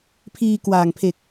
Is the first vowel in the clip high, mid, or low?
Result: high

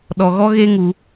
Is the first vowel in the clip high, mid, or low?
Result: mid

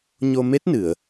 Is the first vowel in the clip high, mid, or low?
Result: mid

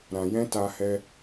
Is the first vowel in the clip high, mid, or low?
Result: low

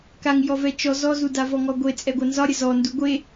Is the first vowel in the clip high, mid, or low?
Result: low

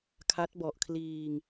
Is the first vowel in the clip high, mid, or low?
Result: low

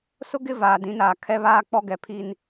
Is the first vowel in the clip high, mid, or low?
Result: high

